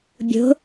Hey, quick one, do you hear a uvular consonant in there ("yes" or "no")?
no